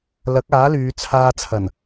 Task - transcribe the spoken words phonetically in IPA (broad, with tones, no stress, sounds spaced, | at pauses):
l ɐ˨˥ k̚ aː˨˥ l yː˨˧ t͡sʰ aː˧ t͡sʰ ɐ˨˩ n